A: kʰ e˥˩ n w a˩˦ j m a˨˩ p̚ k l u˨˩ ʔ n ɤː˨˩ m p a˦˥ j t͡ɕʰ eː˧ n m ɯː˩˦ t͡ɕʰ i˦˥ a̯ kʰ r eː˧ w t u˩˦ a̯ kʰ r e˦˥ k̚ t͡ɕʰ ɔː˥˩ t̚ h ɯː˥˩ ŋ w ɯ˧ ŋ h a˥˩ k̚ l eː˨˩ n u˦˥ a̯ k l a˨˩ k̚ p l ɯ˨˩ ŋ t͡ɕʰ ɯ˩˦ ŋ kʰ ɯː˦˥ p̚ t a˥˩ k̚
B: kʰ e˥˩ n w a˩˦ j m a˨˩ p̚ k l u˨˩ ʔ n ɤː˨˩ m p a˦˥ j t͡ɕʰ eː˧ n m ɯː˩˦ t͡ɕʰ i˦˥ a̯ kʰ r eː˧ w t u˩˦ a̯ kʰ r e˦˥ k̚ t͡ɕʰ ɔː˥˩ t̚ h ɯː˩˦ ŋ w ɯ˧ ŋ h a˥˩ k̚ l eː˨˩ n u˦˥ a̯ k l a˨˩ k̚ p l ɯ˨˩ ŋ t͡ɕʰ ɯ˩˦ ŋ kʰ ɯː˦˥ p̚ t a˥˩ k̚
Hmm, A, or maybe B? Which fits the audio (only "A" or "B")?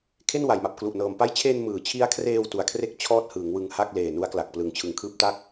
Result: B